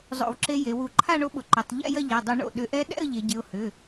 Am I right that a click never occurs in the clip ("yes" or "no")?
no